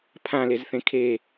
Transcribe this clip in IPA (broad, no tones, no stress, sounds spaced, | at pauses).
pʰ ã l e z θ ẽ kʰ e